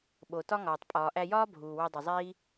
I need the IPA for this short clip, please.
ɓ o˩ t ɒ˥ ŋ ɒː˩ tˤ pʼ ɒː˩ ʔ æ˧ j ɒː˥ bʱ uː˩ w o˧ dˤ i˩ zˤ iː˥

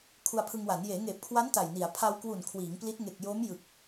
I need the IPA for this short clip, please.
kʰ u˧ a̯ pʰ ɯ˧ ŋ w a˩˦ n j eː˩˦ ŋ eː˨˩ p̚ kʰ w a˦˥ n t a˨˩ j n i˩˦ a̯ pʰ a˧ w k w u˨˩ n kʰ w iː˩˦ ŋ p l i˦˥ t̚ ŋ e˨˩ k̚ j o˦˥ m j ɯ˨˩ k̚

